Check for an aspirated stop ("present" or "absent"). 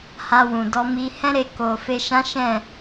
absent